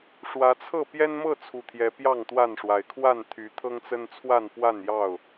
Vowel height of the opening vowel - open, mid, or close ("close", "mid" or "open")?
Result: open